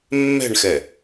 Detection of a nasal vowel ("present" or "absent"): absent